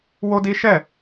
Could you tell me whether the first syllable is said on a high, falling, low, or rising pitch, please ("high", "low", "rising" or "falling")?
high